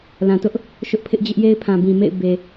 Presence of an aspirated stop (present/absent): present